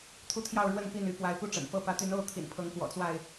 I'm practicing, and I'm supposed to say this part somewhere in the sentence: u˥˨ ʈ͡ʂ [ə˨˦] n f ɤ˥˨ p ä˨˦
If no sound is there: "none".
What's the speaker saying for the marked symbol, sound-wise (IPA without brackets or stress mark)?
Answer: ə̰˨˩